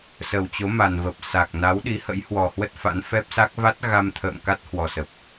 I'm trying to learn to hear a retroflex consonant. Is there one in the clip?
no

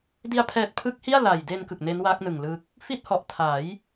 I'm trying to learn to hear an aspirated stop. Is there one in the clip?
yes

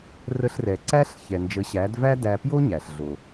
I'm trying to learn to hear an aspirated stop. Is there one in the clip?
no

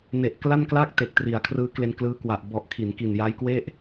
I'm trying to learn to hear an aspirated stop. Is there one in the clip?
yes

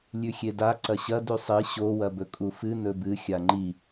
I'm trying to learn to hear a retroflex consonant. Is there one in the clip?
no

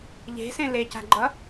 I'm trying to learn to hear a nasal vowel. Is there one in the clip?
yes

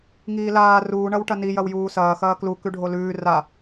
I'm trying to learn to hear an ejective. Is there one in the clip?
no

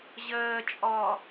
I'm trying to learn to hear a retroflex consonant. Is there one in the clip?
no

